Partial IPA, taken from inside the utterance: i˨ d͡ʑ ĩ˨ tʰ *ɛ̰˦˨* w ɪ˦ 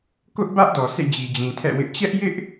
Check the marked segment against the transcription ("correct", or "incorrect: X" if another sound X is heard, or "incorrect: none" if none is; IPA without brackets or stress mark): correct